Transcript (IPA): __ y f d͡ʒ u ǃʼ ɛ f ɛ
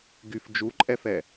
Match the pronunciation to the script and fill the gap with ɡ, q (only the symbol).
ɡ